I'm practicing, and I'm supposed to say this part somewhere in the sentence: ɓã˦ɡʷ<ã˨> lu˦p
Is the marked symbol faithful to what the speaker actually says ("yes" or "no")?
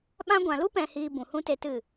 yes